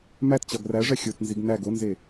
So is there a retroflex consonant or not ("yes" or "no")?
yes